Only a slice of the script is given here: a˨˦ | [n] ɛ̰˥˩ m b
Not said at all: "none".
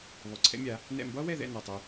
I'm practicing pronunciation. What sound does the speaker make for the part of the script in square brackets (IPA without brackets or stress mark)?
n